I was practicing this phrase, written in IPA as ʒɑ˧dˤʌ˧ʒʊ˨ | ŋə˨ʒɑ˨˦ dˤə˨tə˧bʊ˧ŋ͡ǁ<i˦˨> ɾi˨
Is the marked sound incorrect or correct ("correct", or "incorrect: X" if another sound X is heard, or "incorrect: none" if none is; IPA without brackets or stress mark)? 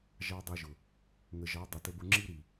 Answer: incorrect: i˦